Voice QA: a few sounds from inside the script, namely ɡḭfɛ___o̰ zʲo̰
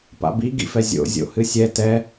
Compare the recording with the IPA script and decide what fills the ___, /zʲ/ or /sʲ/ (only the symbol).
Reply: zʲ